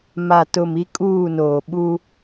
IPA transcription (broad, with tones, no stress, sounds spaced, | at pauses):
m a˨ t ʊ˨ m i˦ kʼ uː˦˨ n oː˨ ɓ u˦